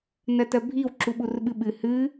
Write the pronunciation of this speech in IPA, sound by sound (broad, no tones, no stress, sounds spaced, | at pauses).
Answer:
n ɜ t ɜ bʱ i w ǁ u ɓ u r ɓ ɨ ɓ ɨ h ɨ